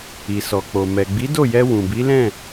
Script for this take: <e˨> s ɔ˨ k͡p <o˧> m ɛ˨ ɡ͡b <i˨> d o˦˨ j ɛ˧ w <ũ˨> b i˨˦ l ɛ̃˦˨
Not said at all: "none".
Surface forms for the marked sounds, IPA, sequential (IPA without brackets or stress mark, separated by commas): i˨, o˨, i˨˦, ũ˨